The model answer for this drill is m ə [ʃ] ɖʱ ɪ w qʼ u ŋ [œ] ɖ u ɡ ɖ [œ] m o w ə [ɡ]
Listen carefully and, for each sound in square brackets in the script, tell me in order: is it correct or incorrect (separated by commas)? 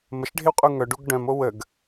correct, correct, incorrect, correct